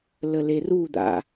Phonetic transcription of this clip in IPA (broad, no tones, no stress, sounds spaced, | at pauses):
l ə l e r u d̪ a̰